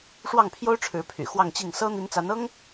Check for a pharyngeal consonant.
absent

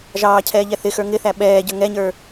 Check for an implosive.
present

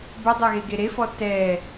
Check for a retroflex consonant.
absent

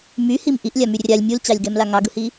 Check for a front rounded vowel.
present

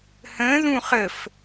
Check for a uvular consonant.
present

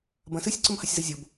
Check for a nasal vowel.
present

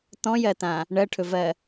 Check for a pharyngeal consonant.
absent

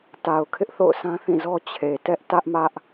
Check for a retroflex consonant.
absent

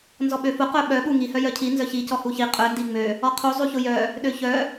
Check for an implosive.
present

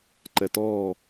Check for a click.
present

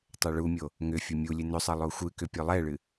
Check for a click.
absent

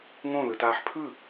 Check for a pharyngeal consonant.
present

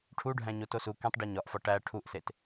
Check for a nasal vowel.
present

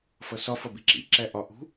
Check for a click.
present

